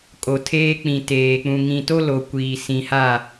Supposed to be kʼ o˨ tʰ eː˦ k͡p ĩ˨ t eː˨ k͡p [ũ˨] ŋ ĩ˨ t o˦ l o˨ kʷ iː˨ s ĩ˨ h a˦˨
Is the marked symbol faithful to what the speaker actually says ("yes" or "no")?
yes